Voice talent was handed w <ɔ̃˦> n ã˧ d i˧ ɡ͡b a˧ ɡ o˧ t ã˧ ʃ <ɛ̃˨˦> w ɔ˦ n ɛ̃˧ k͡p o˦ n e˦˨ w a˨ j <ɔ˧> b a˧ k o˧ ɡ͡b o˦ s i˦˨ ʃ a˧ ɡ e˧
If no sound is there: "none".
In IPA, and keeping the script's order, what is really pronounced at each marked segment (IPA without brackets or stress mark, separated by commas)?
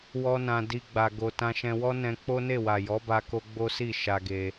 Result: ɔ˦, ɛ̃˧, ɔ˨˦